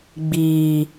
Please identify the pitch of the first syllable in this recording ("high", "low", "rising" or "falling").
low